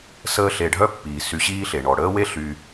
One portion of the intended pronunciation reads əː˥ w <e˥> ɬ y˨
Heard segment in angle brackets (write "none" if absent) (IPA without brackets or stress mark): e˥